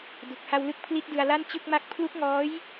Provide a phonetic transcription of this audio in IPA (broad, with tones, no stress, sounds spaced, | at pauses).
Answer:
d u˨˩ k̚ h a˧ w l ɯ˦˥ k̚ pʰ l i˦˥ t̚ d ɯ˧ a̯ l a˥˩ n t͡ɕ ɯ˥˩ k̚ m a˥˩ k̚ pʰ l u˦˥ k̚ ŋ ɔː˦˥ j